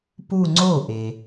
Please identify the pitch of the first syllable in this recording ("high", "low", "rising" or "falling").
falling